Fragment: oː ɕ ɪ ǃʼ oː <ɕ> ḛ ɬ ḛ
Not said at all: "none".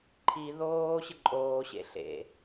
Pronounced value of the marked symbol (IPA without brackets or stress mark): ɕ